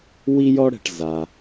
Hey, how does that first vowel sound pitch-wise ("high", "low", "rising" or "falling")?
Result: high